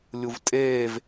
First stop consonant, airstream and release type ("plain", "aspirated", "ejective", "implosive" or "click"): ejective